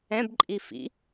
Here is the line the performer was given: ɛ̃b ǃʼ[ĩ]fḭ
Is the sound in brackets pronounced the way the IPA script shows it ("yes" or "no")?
no